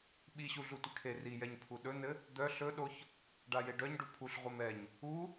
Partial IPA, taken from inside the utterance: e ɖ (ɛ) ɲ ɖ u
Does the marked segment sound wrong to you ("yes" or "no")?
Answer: yes